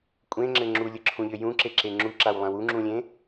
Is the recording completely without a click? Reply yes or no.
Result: no